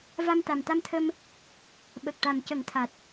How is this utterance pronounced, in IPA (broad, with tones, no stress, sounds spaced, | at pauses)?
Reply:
v a˧ m t̪ a˨˩ m t̪ a˧ m t̪ʰ ə˧ m | ɓ ə˨˩ k̚ ʈ a˨˩ m c ə˨˩˦ ŋ t̪ʰ a˨˩ t̚